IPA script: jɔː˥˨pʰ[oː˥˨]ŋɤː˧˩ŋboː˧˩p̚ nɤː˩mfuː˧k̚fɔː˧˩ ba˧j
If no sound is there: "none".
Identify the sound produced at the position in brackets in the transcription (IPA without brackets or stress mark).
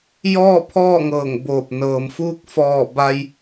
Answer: ɔː˥˨